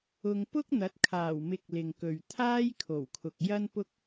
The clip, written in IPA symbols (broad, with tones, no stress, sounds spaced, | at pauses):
ʊ˧ ŋ p ʊ˥ k̚ n̪ ɐ˨˥ t̚ kʰ aː˨˩ w m ɪ˧ k̚ l ɪ˨ ŋ k ɵ˨ ɥ t̪ʰ aː˥ j kʰ o˨˩ w kʰ ʊ˨ k̚ j ɐ˥ n p ʊ˥ k̚